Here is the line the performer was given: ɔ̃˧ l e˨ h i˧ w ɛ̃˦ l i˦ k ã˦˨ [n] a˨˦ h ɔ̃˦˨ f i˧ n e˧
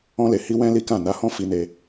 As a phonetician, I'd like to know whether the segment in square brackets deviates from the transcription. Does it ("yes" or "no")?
no